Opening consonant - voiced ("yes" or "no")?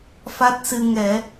no